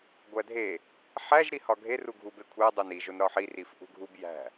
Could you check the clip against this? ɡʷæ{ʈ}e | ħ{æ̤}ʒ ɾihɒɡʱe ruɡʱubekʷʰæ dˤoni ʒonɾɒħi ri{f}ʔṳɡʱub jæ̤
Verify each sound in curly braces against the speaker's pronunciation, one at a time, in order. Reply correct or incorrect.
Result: incorrect: dʱ, incorrect: æ, correct

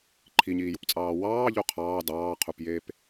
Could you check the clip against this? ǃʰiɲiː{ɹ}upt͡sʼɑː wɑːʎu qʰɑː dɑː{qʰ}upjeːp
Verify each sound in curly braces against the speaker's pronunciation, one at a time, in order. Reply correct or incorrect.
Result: incorrect: j, correct

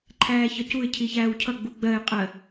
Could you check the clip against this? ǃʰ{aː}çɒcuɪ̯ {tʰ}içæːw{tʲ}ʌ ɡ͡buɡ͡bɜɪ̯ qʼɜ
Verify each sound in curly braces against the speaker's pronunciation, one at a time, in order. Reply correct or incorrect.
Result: incorrect: æː, incorrect: cʰ, incorrect: cʰ

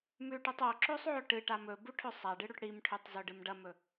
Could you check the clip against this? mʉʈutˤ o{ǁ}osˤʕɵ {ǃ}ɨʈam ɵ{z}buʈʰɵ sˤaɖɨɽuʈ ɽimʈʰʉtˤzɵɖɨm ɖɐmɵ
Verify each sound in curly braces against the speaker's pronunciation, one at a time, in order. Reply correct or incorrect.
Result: correct, incorrect: ʈ, incorrect: none

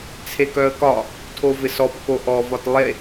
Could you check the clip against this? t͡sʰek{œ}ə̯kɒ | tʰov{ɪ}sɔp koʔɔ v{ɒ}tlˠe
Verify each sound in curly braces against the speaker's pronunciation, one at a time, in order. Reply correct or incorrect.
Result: correct, correct, correct

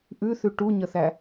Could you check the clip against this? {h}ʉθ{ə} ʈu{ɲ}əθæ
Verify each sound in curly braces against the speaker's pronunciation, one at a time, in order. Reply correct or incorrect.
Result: incorrect: ʔ, incorrect: ʉ, correct

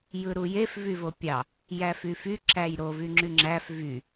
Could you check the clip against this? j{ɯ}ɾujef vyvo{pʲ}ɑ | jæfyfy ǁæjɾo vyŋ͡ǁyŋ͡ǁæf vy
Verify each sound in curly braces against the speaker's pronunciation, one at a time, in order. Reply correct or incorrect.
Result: correct, correct

